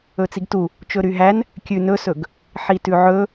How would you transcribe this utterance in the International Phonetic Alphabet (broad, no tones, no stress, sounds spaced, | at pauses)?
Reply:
ɵ t͡s i ɡ t u | t͡ʃ ɵ ɾ y ɦ æ n | kʲ ʉ n ɵ s ɵ ɡ | ħ i t ʉ ʕ ɵ